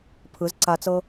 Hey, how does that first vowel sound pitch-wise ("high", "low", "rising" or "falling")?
rising